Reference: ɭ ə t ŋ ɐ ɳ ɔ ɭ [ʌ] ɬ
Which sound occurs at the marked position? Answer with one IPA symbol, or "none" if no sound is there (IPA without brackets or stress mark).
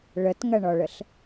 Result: ə